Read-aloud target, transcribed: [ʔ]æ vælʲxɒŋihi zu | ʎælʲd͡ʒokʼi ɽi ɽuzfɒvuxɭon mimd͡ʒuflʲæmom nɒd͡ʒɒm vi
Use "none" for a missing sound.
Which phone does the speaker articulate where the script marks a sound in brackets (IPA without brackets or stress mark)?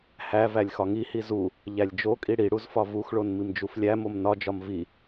h